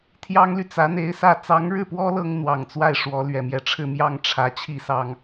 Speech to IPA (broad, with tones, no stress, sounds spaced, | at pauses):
t̪ʰ j ɑ˥ ŋ l y˨ t͡s ä˧˥ n̪ e˧˥ ɪ̯ s ä˥˩ t͡s ɑ˧˥ ŋ ɻ ɻ̩˥˩ p w ɔ˥ l ɤ˥ ŋ n̪ w ɑ˨˩ ŋ t͡s w a˥˩ ɪ̯ ʂ w ɔ˧˥ l ɥ ɛ˨˩ m j ɛ˥˧ ʈ͡ʂʰ ɻ̩˥˧ m j ɑ˥˩ ŋ ʈ͡ʂʰ ä˧˥ t͡ɕʰ i˥˩ s ɑ˥ ŋ